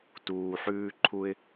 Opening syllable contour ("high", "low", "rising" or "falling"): low